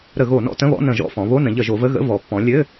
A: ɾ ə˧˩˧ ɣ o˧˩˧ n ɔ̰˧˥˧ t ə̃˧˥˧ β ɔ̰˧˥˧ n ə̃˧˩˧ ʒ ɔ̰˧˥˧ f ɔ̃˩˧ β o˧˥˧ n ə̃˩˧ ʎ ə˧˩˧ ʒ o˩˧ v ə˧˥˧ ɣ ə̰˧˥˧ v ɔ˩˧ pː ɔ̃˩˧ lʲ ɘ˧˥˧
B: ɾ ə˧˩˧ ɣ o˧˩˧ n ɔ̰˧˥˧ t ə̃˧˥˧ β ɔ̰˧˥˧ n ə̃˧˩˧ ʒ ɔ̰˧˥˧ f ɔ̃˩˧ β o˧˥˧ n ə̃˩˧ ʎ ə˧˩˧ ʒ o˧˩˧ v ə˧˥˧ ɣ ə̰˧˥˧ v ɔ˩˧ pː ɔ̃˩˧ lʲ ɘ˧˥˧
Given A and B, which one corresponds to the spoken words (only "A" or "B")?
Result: A